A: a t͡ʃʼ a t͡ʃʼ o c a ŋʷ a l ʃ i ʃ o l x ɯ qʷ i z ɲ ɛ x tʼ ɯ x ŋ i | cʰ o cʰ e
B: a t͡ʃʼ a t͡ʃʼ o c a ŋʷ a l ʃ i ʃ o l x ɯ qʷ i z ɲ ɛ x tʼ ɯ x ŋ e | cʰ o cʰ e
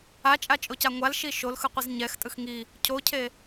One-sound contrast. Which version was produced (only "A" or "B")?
A